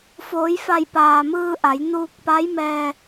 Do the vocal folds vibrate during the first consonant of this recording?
no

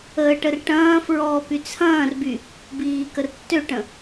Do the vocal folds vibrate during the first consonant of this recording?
no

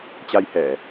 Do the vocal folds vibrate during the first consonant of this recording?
no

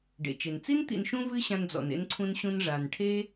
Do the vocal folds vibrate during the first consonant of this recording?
yes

